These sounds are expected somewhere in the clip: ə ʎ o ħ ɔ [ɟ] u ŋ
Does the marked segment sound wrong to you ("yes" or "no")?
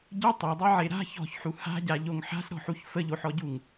no